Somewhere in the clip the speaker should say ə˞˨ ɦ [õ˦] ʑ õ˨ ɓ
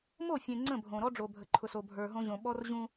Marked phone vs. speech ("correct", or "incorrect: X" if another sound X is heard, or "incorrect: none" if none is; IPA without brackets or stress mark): correct